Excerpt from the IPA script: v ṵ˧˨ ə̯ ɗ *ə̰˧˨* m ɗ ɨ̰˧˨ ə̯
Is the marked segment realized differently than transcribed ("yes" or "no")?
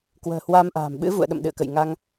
no